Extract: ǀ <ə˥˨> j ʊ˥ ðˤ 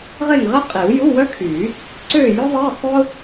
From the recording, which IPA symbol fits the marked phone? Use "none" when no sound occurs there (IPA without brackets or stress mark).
ø˥˨